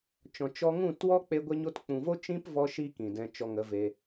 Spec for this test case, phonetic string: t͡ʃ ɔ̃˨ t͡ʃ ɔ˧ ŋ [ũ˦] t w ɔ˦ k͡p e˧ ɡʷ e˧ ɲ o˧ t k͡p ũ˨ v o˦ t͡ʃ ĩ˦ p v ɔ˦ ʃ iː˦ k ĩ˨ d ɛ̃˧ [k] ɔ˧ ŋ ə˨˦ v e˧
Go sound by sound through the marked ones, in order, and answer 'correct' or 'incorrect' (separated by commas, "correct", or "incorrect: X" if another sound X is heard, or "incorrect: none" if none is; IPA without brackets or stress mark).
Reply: incorrect: ũ˦˨, incorrect: t͡ʃ